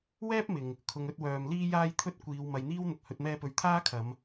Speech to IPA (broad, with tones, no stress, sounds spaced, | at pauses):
w ɛː˥ p̚ m ɪ˨ ŋ | kʰ ʊ˨ ŋ ɵ˧ t̚ w œː˨ m l iː˧ j aː˧ j t̪ʰ ɵ˧ t̚ kʷ iː˨˧ w m ɐ˨ j n̪ iː˥ w n̪ ʊ˨ k̚ h ɵ˨ t̚ m ɛː˧ p ɵ˨ ɥ t̪ʰ aː˥ kʰ ɐ˨˧ m